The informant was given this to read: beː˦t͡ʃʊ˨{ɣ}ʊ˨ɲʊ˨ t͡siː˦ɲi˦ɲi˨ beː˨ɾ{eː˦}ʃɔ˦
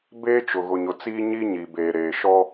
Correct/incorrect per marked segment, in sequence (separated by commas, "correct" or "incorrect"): correct, incorrect